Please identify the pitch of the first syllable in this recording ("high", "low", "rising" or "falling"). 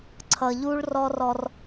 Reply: low